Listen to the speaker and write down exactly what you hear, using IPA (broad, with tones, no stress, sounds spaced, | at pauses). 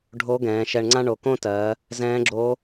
ɖʱ o˧˥ ɡ ɛ̃ː˩˧ ʃ ɛ˧ ɳ ŋ͡ǀ ã˥ ɳ o˩ k õ˥ t ɜː˩˧ | z ɛ̃ː˧˥ ɡ͡ǁ o˧˥